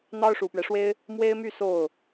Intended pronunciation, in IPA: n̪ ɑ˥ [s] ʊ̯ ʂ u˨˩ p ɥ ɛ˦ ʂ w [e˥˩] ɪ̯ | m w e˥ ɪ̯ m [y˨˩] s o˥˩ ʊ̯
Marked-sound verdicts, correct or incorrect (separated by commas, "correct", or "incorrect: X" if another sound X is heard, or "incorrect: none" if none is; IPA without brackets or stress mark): incorrect: none, incorrect: e˥, incorrect: y˥˧